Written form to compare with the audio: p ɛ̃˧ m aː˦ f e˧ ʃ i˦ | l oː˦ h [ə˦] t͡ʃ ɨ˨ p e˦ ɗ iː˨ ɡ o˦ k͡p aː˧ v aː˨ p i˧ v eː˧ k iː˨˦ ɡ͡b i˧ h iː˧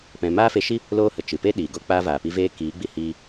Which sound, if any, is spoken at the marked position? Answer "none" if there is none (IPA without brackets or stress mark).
ə˨